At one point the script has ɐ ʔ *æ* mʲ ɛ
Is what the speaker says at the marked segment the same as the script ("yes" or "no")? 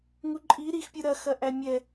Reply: yes